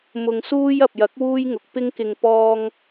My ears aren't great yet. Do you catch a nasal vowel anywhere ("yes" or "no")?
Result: no